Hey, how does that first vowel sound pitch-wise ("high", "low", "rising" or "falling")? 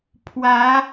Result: rising